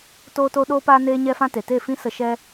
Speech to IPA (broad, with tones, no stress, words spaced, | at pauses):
toː˦to˦ɗoː˦paː˦ neː˦ɲɛ˦fã˦te˨ te˦˨fĩ˦sə˧ ʃɛ˦